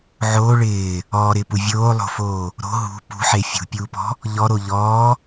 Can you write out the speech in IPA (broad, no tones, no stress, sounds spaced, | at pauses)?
ʕ oː ɭ ɪː | ɔː ɾ ɪː p u vʲ oː lˠ o̤ f oː | ɾ o̤ ɦ ṳ p ṳ ħ e fʲ ṳ pʲ uː p ɔ̤ | ʎ ɔ ɾ o ʎ ɔː